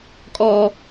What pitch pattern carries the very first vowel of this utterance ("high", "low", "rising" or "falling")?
high